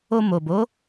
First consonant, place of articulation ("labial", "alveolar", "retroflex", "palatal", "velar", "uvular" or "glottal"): labial